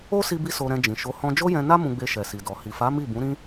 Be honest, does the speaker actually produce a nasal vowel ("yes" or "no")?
yes